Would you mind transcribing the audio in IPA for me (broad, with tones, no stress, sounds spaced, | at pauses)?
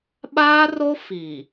ɓ aː˦ r o˦ f i˨